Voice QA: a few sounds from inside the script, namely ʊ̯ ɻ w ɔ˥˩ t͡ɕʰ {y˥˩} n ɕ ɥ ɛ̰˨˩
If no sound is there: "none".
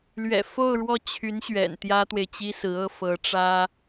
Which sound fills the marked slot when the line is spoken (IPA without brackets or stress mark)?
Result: y˧˥